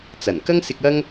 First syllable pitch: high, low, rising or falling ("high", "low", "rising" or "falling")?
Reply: low